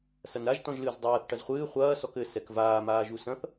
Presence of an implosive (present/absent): absent